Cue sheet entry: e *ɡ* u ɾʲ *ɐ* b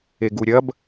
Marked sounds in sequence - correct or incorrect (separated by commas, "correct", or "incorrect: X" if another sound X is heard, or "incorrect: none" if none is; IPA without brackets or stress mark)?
correct, correct